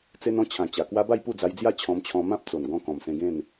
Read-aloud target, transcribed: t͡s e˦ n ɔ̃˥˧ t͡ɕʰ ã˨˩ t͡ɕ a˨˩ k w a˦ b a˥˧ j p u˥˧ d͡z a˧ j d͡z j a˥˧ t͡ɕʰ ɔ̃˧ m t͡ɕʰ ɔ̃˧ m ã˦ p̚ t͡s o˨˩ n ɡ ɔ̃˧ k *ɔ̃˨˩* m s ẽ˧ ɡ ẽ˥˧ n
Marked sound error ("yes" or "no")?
no